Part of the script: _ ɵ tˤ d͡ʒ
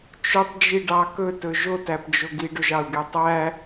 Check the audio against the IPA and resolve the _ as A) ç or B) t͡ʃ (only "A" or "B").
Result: B